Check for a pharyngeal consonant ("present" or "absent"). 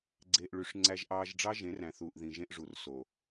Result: absent